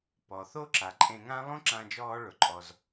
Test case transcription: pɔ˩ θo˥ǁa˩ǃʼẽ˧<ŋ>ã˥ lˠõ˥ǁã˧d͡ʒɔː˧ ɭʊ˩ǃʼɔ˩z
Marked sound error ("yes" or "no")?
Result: no